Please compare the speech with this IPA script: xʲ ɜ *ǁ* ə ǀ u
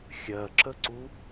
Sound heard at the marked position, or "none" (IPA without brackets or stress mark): ǁ